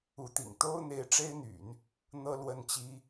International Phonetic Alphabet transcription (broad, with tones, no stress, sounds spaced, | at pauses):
u˧˥ t̪ ḭ˨˩ ŋ t̪ o˥ ʊ̯ n̪ e˧˥ ɪ̯ ʈ͡ʂ e˥ ɪ̯ n̪ y̰˨˩˦ n | n̪ ɤ˥ l w ə˥˩ n t͡ɕ i˥